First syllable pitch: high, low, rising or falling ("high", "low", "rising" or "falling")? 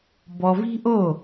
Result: low